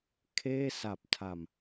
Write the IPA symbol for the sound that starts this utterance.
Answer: kʰ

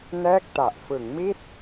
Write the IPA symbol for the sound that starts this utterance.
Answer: n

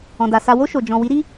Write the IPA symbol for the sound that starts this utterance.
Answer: ɔ̃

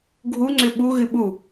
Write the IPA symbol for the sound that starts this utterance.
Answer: ɡʱ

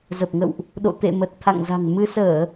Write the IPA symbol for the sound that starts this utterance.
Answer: z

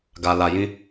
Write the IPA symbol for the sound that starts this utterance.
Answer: ɡ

